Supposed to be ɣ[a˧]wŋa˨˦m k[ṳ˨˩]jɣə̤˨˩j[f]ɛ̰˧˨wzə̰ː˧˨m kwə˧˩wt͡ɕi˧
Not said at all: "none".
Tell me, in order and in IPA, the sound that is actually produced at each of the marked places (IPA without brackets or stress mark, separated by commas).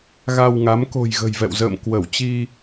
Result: a˧, o̤˨˩, v